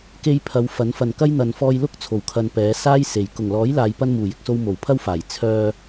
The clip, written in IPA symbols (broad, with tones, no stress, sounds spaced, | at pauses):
k e˧ j pʰ ɐ˨˧ w f ɐ˨˥ n f ɐ˨ n k ɐ˥ j n̪ ɐ˨ n f ɔː˧ j l ʊ˥ k̚ t͡sʰ o˨˩ w kʰ ɐ˨ n p ɛː˨˧ s aː˥ j s e˨ j k ʊ˨˩ ŋ l ɔː˨˥ j l aː˨ j p ɐ˧ n m uː˨˩ j ɪ˨ k̚ s o˧ w m o˨˩ w pʰ ɐ˥ w f aː˨˩ j t͡sʰ œː˧